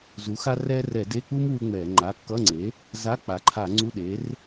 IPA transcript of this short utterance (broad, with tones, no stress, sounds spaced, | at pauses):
z u˩˥ x a˥ r ɛ˥ r ɛ˧˩˧ d e˧˥˧ k͡p u˥ m w u˥ ŋ͡m ɛ˧˩˧ ŋ͡ǃ a˩˧˩ kː ʌ˧˥˧ ŋ͡ǀ e˩˥ | z a˧˥˧ k͡p a˩˥ ǃʰ a˧˩˧ ŋ͡ǀ u˧˥˧ ɗ e˩˥ r